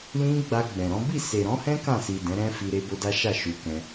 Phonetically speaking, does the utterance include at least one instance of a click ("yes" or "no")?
no